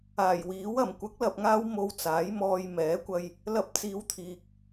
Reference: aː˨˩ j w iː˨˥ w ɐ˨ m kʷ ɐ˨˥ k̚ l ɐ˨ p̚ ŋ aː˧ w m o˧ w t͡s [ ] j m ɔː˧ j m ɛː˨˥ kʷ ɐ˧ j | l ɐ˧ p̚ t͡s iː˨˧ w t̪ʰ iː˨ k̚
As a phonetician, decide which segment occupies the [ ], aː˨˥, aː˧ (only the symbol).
aː˨˥